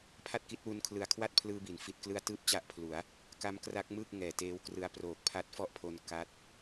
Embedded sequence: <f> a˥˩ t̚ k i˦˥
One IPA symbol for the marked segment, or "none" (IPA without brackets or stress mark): pʰ